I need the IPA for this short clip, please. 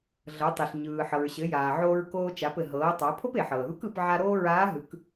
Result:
ɮ ɤ˩˧ tˤ e˩ ɬ ɲ ɯː˩ ħ ɤ˩ ɹ ɕ ɘ˩˧ j aː˩ ʕ oː˧ ɹ k oː˧ t͡ʃ a˩˧ p ɘ˩ ɦ ɤː˩˧ tˤ a˩˧ pʰ o˥ p e˩ ħ ɤː˩ ð u˧˥ k ɯ˩˧ p ʕ a˧ ɾ oː˥ ɹ aː˧˥ ɦ ɯ˩˧ k

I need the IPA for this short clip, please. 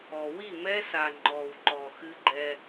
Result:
ɔ˨ w i˦˨ m ɛ˦ s a˨ ŋ͡ǃ ɔ˨ w ǃ ɔ˨ x ɨ˦ ɡ͡ǃ ɛ˦

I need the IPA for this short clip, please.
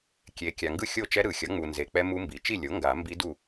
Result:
kʲ e˨ kʲ a˨ ŋ ɡ ɯ˥˨ xʲ o˥˨ t͡ʃ ɛ˦˥ ɾ ɯ˨˩˦ xʲ ʌ˩˥ ŋ͡m u˨ n z e˨ k͡p ɛ˦˥ m u˦˥ m b i˩˥ t͡ʃ i˥˨ lʲ o˩˥ ŋ ɡ a˨˩˦ m b i˦˥ d u˥˨

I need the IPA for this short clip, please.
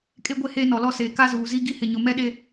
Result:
kʼ e˦ ɡʷ e˦˨ h eː˦ n ɔ˨ l ɔ˦ s eː˨ k a˦ z uː˨ z i˦ ɡ i˦ h ɪ˨ ɲ ʊ˨ m ɛ˦ ɗ e˦

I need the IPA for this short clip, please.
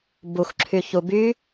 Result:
b u x ǁʰ y ç u b y

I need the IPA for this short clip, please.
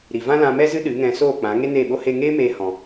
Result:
ɾ i˨ v ã˦ l ã˧ m ɛ˦ z ɨ˦ ɗ ɨ˨˦ ŋ ɛ̃˧ s oː˦˨ k͡p ã˨˦ ŋ e˦ n eː˦˨ ɓ o˦ h e˧ ŋ eː˦ m eː˧ h ɔ̃˧

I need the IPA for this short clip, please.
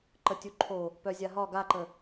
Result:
ǃ ə tʲ u ǃʰ o | p œ zʲ a ɦ ɒ ɡ a ǃ ə

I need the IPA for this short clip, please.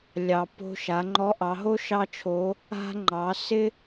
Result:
lʲ ɑ˩ p o̤˧ ʃ a˩˧ ŋ͡ǃ ɔ˧˥ ʔ ɑ˩˧ ɦ o˥ ʃ ɑ˥ t͡ʃʰ oː˧˥ | a̤˧ ŋ͡ǃ ɑ˩˧ s ɪ˥

